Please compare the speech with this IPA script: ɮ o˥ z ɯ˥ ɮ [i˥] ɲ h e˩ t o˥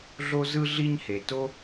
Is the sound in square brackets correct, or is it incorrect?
correct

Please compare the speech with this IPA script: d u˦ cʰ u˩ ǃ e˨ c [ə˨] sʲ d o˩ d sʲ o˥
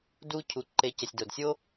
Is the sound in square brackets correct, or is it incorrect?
incorrect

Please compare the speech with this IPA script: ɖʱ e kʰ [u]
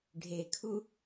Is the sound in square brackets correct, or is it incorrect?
correct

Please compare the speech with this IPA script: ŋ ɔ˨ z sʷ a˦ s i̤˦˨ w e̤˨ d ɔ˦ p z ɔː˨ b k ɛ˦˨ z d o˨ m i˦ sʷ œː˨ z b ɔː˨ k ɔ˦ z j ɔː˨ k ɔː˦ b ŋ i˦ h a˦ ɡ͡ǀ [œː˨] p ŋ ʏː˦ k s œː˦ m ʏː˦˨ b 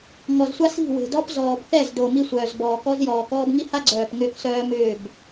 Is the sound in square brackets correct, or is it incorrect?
correct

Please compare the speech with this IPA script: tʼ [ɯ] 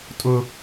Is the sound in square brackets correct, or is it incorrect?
incorrect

